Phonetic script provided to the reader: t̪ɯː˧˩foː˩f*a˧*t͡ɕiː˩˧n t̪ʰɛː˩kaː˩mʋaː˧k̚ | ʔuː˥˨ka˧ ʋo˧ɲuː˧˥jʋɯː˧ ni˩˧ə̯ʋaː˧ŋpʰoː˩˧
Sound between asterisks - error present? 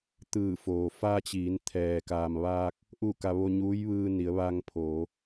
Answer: no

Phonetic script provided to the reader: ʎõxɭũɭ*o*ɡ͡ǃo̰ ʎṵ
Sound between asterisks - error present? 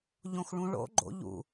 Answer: yes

